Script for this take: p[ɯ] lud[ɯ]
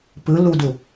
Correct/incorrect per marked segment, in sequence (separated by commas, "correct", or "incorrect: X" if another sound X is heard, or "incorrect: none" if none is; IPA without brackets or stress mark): correct, incorrect: u